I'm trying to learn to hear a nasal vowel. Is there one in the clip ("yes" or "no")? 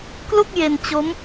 no